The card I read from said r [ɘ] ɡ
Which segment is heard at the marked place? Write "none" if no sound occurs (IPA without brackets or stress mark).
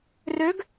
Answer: ø